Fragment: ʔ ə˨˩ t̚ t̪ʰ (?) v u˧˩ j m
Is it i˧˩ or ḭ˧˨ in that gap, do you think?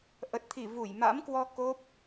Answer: i˧˩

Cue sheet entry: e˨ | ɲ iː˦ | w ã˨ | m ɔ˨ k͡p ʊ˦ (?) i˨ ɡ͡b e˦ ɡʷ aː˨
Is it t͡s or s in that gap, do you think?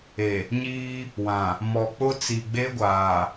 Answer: t͡s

